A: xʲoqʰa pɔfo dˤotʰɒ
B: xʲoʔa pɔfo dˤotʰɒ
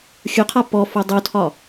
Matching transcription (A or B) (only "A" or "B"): A